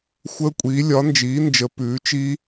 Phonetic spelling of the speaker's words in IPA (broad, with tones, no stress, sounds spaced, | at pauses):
xʷ əː˦˥ kʷʼ iː˨˥ lʲ ɒ˨˥ n d͡ʒ iː˨˥ n d͡ʒ ə˨˥ p ʉː˨˥ t͡ʃ i˦˥